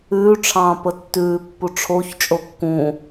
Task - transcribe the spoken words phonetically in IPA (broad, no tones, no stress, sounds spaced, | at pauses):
ʉː ʈ͡ʂʰ ɑ̃ː p ə tː ʉː pː u ʈ͡ʂʰ o ç t͡ʃʼ o kː ũ